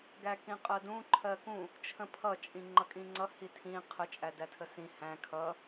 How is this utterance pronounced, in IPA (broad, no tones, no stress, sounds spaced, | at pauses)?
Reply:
ɡ æ k ĩ qʼ ɜ d ũ ǃʰ ɜ k ũ | t͡ʃʰ ə̃ pʰ ʌ t͡ʃʼ ĩ ŋ͡ǃ ʌ kʼ ĩ ŋ͡ǀ ʌ h i tʰ ĩ qʰ ə t͡ʃʼ æ d æ tʰ ə s ĩ h æ̃ kʰ ʌ